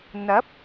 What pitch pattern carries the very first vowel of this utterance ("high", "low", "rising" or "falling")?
rising